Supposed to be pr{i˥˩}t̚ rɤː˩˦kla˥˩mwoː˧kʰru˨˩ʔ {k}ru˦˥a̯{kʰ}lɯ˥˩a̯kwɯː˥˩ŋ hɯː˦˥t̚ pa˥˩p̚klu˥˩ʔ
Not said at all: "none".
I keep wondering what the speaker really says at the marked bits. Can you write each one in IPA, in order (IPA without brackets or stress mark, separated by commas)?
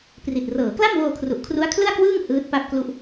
i˨˩, kʰ, kʰ